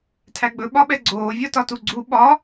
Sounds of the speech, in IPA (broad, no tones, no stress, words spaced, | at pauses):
tʰæɡ͡bɵ ɓɒɓɛɡ͡ǀoː vʲɒtɒtuɡ͡ǀu ɓɒ